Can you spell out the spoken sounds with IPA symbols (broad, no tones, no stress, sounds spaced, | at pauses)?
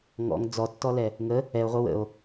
ŋ ɔ̰ ŋ d͡z ɔ tː ɔ l ɛ | ŋ ə | ɛ o̯ ʁʷ ʌ w ə̰ o̯